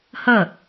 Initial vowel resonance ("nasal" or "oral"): oral